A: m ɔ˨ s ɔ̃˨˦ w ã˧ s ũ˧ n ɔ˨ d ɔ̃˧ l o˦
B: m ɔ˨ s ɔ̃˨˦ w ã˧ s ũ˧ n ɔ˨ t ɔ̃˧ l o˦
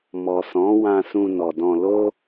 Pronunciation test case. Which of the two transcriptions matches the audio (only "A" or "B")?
A